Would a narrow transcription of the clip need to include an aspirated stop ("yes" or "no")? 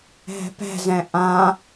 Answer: no